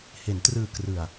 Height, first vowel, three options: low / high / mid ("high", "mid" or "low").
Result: mid